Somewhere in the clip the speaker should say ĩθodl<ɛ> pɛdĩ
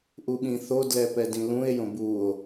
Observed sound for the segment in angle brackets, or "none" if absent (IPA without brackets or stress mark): ɛ